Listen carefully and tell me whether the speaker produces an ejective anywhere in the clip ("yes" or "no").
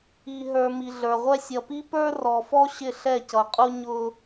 yes